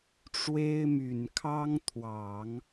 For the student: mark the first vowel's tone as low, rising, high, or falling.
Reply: high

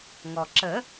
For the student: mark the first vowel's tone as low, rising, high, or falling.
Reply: low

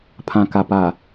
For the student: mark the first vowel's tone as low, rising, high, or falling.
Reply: low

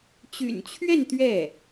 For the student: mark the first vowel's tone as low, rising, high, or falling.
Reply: low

